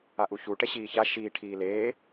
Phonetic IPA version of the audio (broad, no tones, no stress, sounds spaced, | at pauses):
a ʔ u ç u ʈ ɛ ɕ iː ç a ʃ iː ʈʰ iː l eː